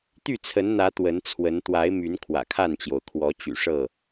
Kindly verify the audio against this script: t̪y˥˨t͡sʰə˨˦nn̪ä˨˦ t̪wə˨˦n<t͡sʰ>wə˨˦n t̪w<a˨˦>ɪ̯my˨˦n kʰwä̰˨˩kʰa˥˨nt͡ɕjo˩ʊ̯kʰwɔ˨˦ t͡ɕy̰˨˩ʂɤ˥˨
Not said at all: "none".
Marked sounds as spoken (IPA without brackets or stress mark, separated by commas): t͡sʰ, a˨˦